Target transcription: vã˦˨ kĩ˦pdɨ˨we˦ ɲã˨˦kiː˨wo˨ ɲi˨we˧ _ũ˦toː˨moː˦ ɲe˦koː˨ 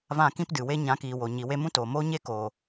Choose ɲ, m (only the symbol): m